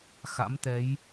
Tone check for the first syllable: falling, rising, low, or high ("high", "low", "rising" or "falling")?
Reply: rising